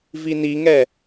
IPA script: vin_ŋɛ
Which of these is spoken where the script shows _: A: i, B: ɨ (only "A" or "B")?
A